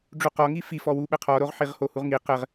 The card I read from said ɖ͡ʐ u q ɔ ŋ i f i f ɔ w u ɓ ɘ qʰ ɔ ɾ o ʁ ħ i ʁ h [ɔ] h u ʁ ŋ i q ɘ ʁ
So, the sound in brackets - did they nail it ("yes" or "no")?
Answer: no